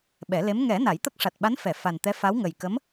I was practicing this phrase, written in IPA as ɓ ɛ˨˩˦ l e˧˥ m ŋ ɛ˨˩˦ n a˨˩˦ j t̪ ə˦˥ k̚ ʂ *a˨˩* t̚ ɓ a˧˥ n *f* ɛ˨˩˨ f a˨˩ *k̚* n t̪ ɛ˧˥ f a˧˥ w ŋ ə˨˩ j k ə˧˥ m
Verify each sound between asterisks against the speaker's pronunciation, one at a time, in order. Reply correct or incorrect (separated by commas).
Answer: correct, correct, incorrect